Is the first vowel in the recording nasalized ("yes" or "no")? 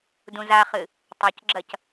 yes